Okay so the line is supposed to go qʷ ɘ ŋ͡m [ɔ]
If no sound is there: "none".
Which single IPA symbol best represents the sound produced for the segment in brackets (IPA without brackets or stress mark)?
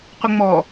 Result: ɔ